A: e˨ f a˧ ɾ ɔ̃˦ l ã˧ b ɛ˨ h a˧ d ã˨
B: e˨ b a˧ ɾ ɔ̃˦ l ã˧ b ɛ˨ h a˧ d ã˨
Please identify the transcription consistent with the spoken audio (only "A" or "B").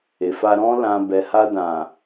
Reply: A